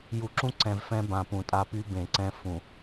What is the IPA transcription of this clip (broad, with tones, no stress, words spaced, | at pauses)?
ju˨ǁũ˦ǀɛ̃˨v fɛ̃˦bã˨pũ˨tʼa˦ py˦bẽ˨ǀɛ̃˦ fũ˨